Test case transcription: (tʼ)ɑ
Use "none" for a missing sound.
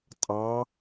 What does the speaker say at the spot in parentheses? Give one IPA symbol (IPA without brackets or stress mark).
tʼ